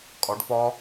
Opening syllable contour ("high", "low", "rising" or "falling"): rising